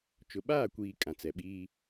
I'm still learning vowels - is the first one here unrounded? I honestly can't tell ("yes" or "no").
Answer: no